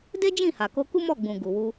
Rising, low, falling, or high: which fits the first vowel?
high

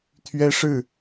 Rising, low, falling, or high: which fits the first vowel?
high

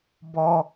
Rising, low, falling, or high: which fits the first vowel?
high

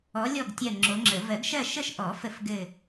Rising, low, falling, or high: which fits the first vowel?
rising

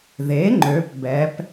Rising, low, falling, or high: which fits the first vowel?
rising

